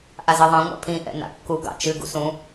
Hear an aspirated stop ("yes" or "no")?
yes